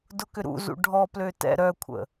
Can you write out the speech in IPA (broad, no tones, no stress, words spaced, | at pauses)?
dʊkʏɾṵzṵ ɖʱɔplø tɛ̰ ɾœkʷʰə̰